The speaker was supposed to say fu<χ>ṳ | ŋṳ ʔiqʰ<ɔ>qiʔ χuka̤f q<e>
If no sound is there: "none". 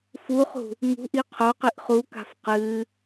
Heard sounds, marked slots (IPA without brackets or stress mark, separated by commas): χ, o, ɨ